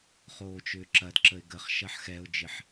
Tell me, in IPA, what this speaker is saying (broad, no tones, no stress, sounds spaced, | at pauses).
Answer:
χ oː t͡ʃ ʏː ǁ ɐ d ǁ ə ɪ̯ ɡ ə χ ʃ ɐ ħ x ɛ ʊ̯ d͡ʒ ɪ ħ